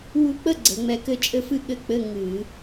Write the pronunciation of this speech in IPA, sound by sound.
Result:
w u˧ k͡p ə˥˨ ɡ͡ǀ ə˩˧ ŋ͡m ɛ˧ k ɘ˥˨ t͡ʃʼ ɘ˧ f ɨ˧ ɠ ɘ˧˥˧ k͡p ɘ˧˥˧ ŋ ɨ˧˩˧

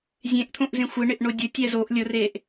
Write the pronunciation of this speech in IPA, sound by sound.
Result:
zʲ ẽ ʔ t̪ʰ õ ʔ z ẽ xʷ ɪ ɳ ɪ ʔ ɳ o dʲ ʊ tʲ ɛ z o ʔ lʲ ʊ r e ʔ

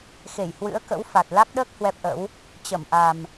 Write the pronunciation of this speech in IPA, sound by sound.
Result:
x e˧˩ j h w ɨ̰˧˥ ə̯ k ə̰˧˥ w f a˨˩ t̚ l a˦˥ k̚ ɗ əː˦˥ k̚ h w ɛ˦˥ p̚ ʔ ə̰˧˥ w | t͡ɕ ə˧˩ m ʔ a˨˩ m

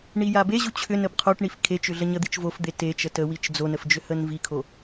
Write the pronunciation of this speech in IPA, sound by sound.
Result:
ɳ i j a b e ʑ u t͡ɕʰ ʏ n ə b qʰ o ʈ ɳ i f kʰ e t͡ʃ ʏ ɮ ə ɲ ə d̪ i t͡ʃ v o f d̪ e t e t͡ʃ ə t ə w i t͡ʃ d͡z o n ə f d͡ʒ ʏ h ə n v i kʰ o

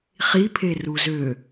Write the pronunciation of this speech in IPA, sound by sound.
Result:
χ i pʰ e r u z ø

